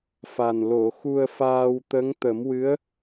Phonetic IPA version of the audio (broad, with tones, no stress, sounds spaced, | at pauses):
f a˨˩ n l o˨˩˨ x u˧ ə̯ f aː˧ w t̪ ə˧˥ ŋ t̪ ə˨˩˦ m w ɨ˧˥ ə̯